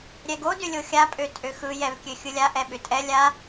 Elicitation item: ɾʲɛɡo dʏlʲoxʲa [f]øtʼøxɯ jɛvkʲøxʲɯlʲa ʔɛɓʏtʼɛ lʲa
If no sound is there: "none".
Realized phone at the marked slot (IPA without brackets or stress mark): pʼ